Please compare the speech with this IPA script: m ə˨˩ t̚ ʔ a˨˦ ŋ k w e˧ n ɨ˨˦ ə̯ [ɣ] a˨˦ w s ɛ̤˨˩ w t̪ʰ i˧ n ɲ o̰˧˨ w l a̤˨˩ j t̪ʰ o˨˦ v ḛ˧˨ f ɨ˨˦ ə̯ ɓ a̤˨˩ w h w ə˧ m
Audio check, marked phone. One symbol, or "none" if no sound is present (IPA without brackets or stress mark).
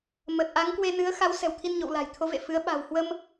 x